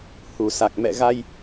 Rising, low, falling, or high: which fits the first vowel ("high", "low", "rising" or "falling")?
low